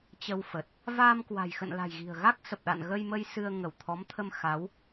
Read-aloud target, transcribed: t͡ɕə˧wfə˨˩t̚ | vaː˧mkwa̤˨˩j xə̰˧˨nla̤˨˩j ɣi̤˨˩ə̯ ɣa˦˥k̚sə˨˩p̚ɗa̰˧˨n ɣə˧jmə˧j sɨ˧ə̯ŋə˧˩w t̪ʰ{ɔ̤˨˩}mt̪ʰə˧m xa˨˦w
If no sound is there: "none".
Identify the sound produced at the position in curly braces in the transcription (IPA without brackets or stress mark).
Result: ɔ˨˦